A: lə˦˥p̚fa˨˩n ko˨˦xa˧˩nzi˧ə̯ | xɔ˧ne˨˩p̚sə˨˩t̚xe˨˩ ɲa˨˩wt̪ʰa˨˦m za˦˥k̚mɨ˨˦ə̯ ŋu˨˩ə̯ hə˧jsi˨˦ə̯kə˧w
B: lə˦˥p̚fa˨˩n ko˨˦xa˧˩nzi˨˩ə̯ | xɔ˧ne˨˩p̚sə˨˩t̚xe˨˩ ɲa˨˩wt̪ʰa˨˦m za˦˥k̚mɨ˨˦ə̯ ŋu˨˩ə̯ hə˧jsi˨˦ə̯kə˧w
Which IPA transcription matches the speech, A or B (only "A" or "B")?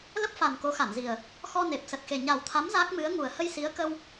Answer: B